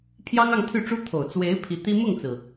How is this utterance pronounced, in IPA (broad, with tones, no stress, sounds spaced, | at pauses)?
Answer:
pʰ j ɑ˥ ŋ ɑ˥˧ ŋ t̪ʰ y˥˩ ʈ͡ʂ u˥ t̪ʰ o˨˩ ʊ̯ t͡s w e˧˥ ɪ̯ pʰ i˧˥ t̪ i˥ m ʊ˥˩ ŋ t͡s ɹ̩˩